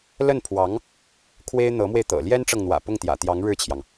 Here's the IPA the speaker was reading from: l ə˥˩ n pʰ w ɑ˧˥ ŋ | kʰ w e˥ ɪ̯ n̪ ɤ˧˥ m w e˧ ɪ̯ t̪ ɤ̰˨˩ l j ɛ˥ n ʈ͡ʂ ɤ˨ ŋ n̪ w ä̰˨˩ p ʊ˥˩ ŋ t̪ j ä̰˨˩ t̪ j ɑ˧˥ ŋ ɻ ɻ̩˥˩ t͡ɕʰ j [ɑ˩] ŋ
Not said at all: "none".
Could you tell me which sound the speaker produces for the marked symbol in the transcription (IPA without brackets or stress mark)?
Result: ɑ˩